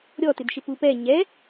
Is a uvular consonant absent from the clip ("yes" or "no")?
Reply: yes